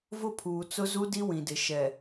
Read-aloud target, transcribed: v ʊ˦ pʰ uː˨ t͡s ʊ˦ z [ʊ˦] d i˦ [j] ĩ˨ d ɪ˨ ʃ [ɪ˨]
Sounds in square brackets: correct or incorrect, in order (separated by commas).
incorrect, incorrect, incorrect